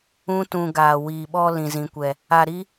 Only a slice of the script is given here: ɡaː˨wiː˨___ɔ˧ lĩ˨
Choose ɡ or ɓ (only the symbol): ɓ